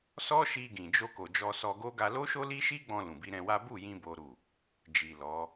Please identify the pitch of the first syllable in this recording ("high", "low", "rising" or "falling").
high